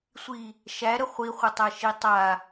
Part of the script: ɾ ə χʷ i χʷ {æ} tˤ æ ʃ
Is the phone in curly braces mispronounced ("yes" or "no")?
yes